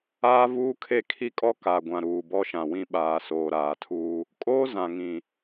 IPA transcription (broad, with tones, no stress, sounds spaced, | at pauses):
aː˦ v uː˦ kʰ e˦˨ kʰ i˦ kʼ ɔ˦ k a˨ ɡʷ ã˨ ɾ uː˨ b ɔ˦ ʃ ã˨ w ĩ˦ ɓ aː˨ s oː˨ ɾ aː˨ tʰ uː˦ | kʼ oː˦ z ã˨ ŋ ĩ˨